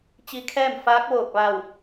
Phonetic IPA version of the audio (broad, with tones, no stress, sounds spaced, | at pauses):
t͡ɕ i˧ kʰ ɛː˥˨ m f aː˧˥ k̚ ʋ oː˧˩ k̚ ʋ a˧˩ w